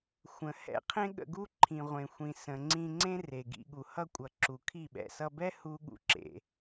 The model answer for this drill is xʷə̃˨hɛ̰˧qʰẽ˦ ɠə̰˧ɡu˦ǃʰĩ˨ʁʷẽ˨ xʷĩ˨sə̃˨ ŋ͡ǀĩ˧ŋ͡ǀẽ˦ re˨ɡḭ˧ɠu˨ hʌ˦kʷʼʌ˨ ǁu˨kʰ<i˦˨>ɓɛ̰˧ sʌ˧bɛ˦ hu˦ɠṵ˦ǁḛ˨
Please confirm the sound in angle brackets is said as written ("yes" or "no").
yes